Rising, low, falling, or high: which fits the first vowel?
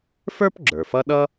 high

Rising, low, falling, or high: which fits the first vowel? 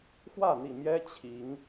falling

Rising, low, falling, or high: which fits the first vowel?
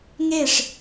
falling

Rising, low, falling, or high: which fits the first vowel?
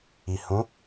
low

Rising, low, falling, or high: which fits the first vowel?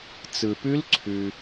low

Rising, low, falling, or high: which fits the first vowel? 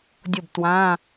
falling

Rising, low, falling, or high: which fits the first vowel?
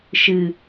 low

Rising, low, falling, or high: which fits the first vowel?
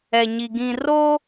low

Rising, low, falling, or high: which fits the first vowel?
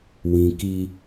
low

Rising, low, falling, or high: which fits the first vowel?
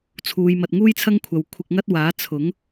low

